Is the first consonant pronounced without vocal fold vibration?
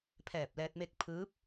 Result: yes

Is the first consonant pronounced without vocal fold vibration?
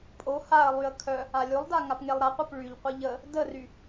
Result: yes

